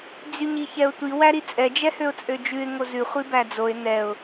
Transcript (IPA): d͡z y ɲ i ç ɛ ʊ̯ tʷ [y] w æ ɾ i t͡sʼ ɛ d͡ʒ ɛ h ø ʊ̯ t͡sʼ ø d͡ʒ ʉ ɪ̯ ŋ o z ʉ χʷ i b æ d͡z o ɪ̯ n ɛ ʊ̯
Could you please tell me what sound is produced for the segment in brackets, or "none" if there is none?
i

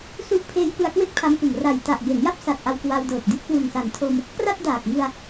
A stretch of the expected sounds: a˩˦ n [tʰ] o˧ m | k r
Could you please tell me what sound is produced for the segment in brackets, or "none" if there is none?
tʰ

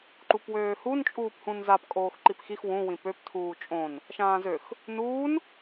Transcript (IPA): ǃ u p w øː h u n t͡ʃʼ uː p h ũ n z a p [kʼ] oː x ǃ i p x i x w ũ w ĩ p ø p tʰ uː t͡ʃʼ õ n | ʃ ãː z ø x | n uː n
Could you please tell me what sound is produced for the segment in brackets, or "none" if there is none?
kʼ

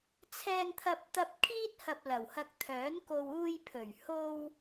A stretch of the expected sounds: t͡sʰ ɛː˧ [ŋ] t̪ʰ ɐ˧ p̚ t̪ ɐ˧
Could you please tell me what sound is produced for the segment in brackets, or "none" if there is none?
ŋ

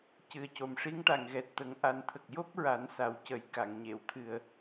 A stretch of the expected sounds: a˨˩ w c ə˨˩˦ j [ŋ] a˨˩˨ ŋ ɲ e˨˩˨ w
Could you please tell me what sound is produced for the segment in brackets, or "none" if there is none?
k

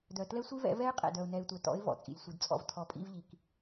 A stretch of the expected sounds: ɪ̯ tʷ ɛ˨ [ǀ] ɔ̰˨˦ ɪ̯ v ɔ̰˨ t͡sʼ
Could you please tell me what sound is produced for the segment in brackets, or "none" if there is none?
t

